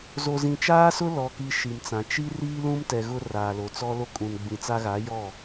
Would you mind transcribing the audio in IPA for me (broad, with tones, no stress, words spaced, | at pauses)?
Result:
zo˨zĩ˨t͡ʃaː˦sʊ˦ lɔ˨ki˨ ʃi˨mt͡sã˨ t͡ʃi˦ riː˦lũ˦mtɛ˨ ɣʊ˦raː˨lo˨t͡sɔ˦ lo˦kʼũ˨n ɡ͡bĩ˨t͡sa˦ɣa˨˦ jɔ˦˨